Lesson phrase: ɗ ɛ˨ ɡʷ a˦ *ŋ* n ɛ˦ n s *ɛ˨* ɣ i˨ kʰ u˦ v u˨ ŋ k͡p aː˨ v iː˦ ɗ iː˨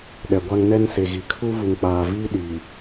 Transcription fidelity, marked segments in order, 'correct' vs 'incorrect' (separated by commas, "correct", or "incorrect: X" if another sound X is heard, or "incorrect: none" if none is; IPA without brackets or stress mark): correct, incorrect: e˨